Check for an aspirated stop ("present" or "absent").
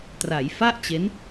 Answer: absent